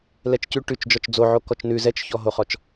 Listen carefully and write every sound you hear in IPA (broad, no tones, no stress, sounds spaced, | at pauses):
l ɛ t͡ʃ c ʉ ʈ ʉ t͡ʃ d͡ʒ ɔ t͡ʃ d͡z o ʕ o k ɔ t͡ʃ n ʉ z ɛ t͡ʃ ç ɔ ɦ o χ ɔ t͡ʃ